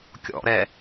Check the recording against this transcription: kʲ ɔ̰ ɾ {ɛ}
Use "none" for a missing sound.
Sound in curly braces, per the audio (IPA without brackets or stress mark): ɛ